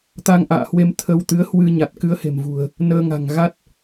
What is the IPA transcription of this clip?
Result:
t̪ a˧ ŋ ʔ a̰ː˧˨ h w e˧ m t̪ʰ ə˧ w t̪ ɨ˨˦ ə̯ h w ɨ˧ ɲ a˨˩ t̚ k ɨ˧ ə̯ h e̤˨˩ m v ṳ˨˩ ə̯ | n əː˧ ŋ a̤˨˩ ŋ ɣ a˦˥ t̚

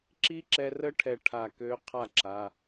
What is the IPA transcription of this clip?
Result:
ǁ i˦˥ ǁ ɛ˧ r ə˦˥ ʈʰ ɛ˧ ʈʰ a˧˩ k ø˦˥ qʰ a˥˩ ǁ a˩˧˩

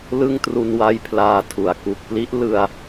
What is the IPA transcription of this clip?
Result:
l ɯ˥˩ ŋ t r u˧ n w a˦˥ j pʰ l aː˧ tʰ u˩˦ a̯ k u˨˩ k̚ p l i˦˥ ʔ l ɯ˧ a̯

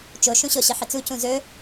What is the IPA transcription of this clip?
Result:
t͡ʃ o ʃ ũ ɕ o ɕ ə ħ ə t͡s u c ũ z ɵ

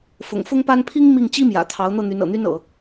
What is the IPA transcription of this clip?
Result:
f ʊ̰˨˩ ŋ f ʊ˥ ŋ p a˥ n pʰ i˥ ŋ m i˥˩ ŋ t͡ɕ i˥ m j ä̰˨˩ t̪ʰ ɑ˧˥ ʊ̯ n̪ ɤ˥˩ n̪ y˧˥ n ɤ̰˨˩ n̪ y˥ n ɤ̰˨˩˦

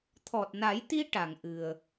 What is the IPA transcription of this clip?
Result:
t̪ʰ ɔ˨˩ t̚ n a˨˩˦ j t̪ i˧ ʈ a˨˩˨ ŋ ʔ ɨ˨˩ ə̯

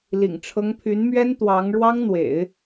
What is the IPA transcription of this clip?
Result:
l ḭ˨˩ ŋ ʈ͡ʂʰ ɤ˧˥ ŋ pʰ y˧˥ n m ɥ ɛ˥ n t̪ w ɑ˧˥ ŋ ɻ w ɑ˥ ŋ n̪ w ḛ˨˩˦ ɪ̯

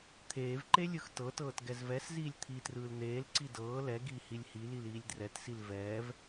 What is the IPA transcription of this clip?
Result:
t̪ʰ eː v ǃ e lʲ ɯ x t ɤ t ɤː t ɡ ɛ z v ɛ s z iː lʲ t̪ʰ i t r ɯː l n̪ eː l ǀ i d ɤː l ɛ ɡ iː h i lʲ h i l i l iː lʲ d r ɛ t s i l v ɛː v

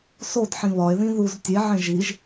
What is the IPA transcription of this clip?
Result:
s o d ħ ĩ β ɒ e̯ ð ĩ ð u z tʲ e ʕ ẽ ʒ i ʒ

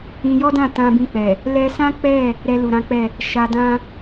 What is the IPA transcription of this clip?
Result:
ĩ˧ j ɔ˦ d ã˦˨ t ã˧ b ĩ˧ k͡p ɛ˨ | l ɛ˧ s ã˦ k͡p ɛ˦˨ | ɾ ɛ˧ l u˨ ɾ ã˨˦ k͡p ɛ˦˨ | ʃ a˧ d ã˦

